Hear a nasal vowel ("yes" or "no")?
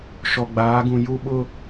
yes